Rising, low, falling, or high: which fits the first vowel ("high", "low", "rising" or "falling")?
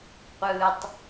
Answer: low